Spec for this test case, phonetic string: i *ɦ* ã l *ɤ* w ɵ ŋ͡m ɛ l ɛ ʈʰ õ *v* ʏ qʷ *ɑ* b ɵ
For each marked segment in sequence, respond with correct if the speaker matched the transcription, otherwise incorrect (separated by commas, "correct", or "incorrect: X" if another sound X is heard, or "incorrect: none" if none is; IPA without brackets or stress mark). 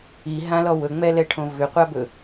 correct, incorrect: ɔ, correct, incorrect: a